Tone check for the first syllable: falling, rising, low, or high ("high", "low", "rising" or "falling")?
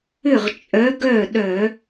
falling